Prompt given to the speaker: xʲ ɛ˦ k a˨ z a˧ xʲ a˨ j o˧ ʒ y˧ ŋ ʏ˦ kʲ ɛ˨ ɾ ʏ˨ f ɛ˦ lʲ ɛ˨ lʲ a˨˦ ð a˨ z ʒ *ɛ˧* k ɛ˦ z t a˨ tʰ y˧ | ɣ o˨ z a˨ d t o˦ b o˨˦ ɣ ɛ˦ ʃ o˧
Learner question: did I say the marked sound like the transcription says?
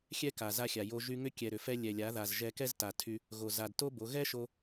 yes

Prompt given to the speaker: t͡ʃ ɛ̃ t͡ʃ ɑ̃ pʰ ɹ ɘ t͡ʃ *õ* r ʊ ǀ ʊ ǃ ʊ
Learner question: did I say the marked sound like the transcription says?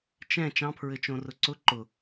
yes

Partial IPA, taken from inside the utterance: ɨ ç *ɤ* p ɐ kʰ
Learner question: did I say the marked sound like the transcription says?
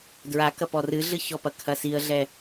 no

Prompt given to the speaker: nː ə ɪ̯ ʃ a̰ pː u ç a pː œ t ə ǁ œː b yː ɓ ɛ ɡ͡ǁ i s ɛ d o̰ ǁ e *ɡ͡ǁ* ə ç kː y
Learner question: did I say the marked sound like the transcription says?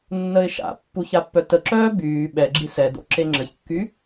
no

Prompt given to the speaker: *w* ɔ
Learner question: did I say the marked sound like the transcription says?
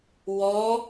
yes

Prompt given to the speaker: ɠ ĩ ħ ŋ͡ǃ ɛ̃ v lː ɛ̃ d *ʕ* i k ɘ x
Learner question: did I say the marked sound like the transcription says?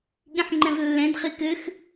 no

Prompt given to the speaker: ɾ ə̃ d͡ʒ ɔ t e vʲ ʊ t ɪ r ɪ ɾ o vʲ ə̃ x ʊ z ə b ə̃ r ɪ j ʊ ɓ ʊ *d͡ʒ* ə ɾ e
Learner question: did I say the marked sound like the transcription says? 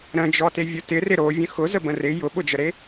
yes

